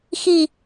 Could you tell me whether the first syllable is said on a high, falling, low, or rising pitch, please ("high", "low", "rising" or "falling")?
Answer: low